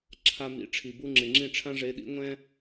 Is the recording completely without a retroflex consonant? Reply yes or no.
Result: no